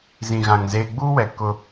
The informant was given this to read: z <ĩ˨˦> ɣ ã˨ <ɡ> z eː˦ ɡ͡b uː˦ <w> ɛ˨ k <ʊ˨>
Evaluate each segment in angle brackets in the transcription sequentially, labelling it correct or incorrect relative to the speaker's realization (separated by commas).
incorrect, incorrect, correct, incorrect